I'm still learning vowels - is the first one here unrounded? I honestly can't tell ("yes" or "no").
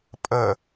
yes